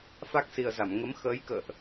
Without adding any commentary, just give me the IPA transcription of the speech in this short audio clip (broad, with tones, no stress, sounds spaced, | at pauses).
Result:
f a˦˥ k̚ s i˨˩ ə̯ z a˧˩ m ŋ ə˨˦ m x əː˨˦ j k ə̰ː˧˨ ʔ